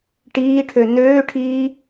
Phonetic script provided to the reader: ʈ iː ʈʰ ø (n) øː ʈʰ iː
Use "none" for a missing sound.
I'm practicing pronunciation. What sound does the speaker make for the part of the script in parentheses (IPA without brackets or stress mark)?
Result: n